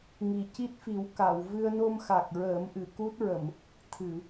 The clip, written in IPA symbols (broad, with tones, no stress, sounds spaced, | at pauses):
ŋ i˨˩ c i˦˥ t̚ f i˨˩˦ w k a˨˩˨ w v ɨ˧ ə̯ n o˧ m x a˨˩ k̚ ɹ əː˨˩˦ m ʔ ɨ˨˩˨ k u˦˥ t̚ ɹ ə˨˩˨ m | t̪ʰ ɨ˨˩˨